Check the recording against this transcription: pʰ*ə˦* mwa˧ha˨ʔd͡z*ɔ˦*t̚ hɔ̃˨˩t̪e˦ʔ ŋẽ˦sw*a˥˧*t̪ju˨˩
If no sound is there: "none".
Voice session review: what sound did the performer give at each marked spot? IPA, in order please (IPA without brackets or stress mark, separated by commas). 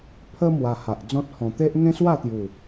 ə˦, ɔ̃˦, a˥˧